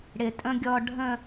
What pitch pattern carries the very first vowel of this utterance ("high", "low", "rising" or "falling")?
low